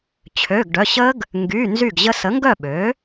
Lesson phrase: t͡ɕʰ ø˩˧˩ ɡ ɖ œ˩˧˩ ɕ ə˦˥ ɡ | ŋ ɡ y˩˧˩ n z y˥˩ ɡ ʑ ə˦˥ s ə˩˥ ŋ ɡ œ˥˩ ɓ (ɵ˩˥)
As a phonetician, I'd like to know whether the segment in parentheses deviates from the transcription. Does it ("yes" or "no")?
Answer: yes